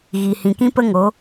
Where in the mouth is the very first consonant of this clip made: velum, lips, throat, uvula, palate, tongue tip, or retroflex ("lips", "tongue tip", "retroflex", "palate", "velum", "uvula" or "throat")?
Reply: velum